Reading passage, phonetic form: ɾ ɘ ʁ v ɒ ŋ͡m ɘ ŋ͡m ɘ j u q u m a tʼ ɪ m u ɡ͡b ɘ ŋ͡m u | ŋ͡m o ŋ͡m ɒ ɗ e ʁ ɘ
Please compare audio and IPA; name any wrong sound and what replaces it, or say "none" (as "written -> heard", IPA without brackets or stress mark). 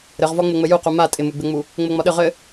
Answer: e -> ɘ